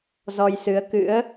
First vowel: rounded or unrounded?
rounded